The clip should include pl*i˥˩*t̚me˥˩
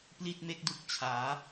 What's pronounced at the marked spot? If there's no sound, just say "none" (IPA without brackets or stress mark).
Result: i˥˩